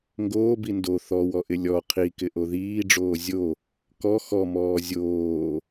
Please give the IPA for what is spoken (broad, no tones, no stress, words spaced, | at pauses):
ŋɡoːbi ndo θɔwɔʔɪ lʲɔ qʰikɪʔo ðiːɖ͡ʐoː zʲo | kɔ xɔmɔː zʲoː